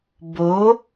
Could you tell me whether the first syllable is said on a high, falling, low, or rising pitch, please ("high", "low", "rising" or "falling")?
rising